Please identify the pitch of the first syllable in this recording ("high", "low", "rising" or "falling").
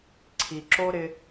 low